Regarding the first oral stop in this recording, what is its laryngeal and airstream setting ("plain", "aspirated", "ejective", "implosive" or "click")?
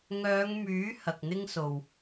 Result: plain